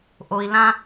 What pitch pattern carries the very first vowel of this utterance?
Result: low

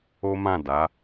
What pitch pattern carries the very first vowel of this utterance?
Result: high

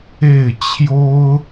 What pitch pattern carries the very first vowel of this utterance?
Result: falling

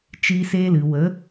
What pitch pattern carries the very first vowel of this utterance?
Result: high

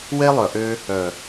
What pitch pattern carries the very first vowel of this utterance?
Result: high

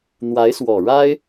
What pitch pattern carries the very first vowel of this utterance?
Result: rising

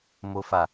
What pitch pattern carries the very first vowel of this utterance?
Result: low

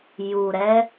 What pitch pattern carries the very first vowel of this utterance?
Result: low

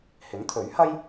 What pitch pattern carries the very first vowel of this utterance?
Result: rising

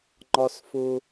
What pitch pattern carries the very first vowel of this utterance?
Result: high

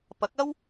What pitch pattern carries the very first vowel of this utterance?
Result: rising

